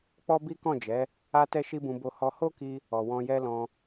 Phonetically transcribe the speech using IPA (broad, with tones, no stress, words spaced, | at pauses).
k͡pɔ˦bi˦kɔ̃˦˨d͡ʒɛ˨˦ | a˧ tɛ˦ʃi˦bũ˧ bo˧ hɔ˧ho˦ki˧ | ɔ˨wɔ̃˧jɛ˦lɔ̃˧